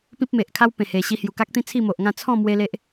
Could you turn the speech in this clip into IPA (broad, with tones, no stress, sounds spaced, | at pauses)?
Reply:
p ĩ˦ p̚ m e˨ ʔ kʰ a˦ w p ẽ˨˩ h e˨˩ ɕ i˧ h j u˨˩ k a˦ k̚ t̪ ĩ˦ t͡sʰ i˥˧ m o˨ ʔ ŋ ã˥˧ t͡sʰ ɔ̃˥˧ m w e˦ l e˦ ʔ